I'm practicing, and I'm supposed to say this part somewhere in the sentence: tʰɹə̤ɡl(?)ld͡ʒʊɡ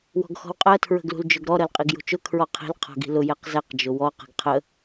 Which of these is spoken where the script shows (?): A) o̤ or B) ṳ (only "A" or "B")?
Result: B